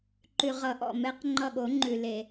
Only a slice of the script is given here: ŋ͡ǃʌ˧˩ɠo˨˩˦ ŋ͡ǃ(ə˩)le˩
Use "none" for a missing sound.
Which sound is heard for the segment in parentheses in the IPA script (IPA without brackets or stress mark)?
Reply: ʉ˩